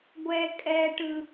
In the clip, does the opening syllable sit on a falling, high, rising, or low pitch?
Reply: high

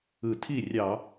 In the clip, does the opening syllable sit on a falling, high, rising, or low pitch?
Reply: low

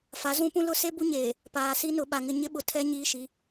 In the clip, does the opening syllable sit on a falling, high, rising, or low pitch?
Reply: rising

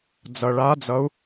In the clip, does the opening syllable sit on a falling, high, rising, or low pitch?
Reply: low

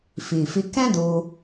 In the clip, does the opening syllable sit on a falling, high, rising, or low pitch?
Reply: low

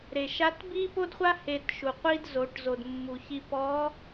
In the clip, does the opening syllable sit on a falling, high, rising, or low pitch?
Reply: low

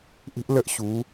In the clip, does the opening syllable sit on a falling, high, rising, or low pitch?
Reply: high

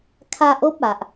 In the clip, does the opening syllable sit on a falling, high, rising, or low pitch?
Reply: high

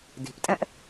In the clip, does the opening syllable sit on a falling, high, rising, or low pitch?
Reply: low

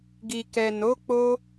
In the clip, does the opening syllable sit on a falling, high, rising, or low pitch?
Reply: low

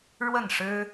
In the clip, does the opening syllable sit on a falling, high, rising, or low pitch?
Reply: falling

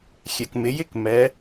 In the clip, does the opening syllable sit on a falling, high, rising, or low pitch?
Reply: low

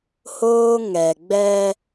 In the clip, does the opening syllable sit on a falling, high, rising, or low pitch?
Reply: high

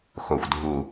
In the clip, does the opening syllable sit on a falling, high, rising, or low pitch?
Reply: low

